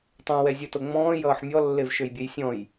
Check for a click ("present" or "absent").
absent